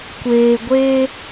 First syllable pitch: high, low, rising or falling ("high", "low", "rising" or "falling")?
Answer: low